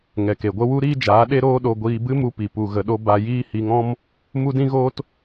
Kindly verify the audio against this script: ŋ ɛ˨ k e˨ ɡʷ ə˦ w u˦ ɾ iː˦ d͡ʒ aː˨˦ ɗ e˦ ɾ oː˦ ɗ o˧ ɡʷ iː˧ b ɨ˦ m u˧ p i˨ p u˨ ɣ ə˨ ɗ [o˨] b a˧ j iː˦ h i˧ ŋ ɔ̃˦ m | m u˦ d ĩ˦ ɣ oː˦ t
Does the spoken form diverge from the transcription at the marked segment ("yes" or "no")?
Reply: yes